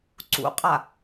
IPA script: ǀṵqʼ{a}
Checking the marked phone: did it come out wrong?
no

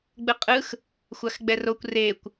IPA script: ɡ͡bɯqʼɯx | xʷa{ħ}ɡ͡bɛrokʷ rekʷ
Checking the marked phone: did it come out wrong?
yes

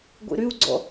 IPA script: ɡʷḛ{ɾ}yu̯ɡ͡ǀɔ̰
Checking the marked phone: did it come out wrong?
no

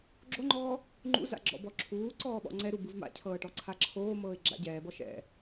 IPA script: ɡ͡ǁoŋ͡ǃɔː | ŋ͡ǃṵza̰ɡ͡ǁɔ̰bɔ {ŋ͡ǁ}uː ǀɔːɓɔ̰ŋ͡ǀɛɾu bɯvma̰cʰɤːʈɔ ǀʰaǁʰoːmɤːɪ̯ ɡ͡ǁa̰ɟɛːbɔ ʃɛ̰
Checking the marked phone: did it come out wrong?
yes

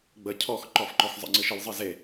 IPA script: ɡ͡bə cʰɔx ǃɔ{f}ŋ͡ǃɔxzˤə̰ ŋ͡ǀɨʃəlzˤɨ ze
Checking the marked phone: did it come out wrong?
no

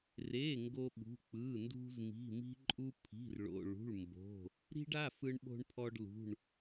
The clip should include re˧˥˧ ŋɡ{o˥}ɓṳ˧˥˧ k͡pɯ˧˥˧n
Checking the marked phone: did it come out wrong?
no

